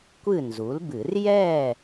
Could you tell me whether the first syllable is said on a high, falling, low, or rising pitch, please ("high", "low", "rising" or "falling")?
falling